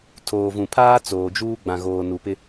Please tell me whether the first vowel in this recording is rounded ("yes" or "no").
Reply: yes